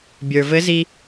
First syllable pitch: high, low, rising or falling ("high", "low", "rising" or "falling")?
low